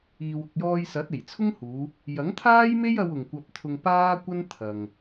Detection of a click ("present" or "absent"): absent